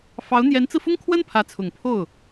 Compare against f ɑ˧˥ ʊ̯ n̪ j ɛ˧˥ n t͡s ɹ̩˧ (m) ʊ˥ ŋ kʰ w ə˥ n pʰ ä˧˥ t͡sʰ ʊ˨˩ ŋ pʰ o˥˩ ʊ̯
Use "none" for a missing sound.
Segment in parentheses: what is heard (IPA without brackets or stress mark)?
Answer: f